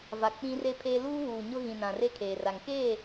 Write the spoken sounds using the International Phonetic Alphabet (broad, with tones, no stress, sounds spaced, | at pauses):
v a˨ k͡p ĩ˦ r e˦ pʰ eː˦ l uː˦ β uː˨ ɲ ʊ˦ ɣ ĩ˨ n ã˨ r e˦ kʰ eː˨ r a˨ ŋ k e˦˨